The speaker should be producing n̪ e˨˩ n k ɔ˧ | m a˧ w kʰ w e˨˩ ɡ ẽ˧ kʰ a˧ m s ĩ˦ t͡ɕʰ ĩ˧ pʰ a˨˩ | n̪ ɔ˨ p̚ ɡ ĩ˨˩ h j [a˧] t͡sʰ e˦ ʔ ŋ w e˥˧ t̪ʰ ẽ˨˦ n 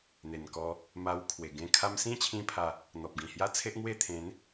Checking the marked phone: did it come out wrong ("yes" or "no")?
yes